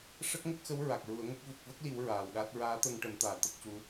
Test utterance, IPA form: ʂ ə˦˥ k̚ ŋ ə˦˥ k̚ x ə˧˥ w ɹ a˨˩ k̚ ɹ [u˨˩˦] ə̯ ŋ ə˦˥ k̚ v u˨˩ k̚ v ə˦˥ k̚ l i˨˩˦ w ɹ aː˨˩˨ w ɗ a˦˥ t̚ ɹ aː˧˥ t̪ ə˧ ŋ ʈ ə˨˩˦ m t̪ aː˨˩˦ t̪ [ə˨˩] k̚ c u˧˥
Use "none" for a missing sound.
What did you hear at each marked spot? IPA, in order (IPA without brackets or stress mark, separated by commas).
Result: u˨˩˦, ə˦˥